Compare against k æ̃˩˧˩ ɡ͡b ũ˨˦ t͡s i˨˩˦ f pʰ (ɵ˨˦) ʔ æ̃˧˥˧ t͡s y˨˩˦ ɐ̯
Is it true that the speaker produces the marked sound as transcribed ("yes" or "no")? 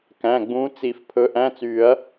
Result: yes